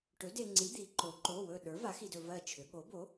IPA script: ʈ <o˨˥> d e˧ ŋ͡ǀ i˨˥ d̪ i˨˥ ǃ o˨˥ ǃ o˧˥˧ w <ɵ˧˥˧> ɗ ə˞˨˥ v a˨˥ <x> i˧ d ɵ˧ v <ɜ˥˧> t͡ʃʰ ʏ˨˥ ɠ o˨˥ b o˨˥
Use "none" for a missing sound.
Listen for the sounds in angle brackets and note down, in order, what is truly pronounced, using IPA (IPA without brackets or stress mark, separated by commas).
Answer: ɵ˨˥, ɵ˥˧, x, ɜ˥˧